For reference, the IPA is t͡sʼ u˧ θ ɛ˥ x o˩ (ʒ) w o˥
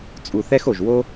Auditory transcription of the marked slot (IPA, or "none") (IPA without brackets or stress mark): ʒ